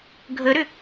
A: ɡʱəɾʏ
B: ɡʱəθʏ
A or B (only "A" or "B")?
A